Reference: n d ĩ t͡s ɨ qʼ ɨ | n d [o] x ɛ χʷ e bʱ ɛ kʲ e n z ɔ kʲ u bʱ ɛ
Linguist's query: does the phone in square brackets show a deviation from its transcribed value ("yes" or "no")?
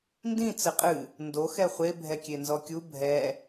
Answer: no